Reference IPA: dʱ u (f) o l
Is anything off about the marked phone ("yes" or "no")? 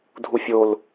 yes